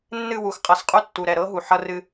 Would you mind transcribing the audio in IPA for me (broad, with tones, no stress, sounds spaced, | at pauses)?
nː ɨ˦˨ w u˨ x qʼ ɐ˨ s qʼ u˦ tː u˨ ɾ ɛ˨ ɾ ɤ˦ ɦ u˨ ħ ʌ˦ r ɨ˦